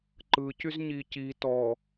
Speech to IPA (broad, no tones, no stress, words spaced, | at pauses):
ǃɯcyz ɲici tɔ